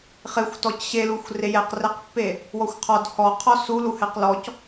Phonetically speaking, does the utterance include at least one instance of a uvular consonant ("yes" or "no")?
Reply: yes